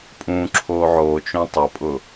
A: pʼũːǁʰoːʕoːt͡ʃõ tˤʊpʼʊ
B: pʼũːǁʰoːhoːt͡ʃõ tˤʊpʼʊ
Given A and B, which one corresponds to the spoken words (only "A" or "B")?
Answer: A